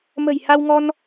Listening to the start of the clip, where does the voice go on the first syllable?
low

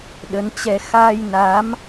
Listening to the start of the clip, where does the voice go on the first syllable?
rising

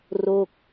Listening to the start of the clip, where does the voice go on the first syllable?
falling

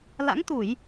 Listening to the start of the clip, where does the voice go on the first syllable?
rising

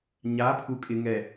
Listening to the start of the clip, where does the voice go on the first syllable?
rising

